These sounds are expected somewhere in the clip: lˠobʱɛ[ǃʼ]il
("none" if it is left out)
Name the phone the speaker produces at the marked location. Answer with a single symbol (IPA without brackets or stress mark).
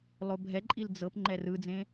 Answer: ǃʼ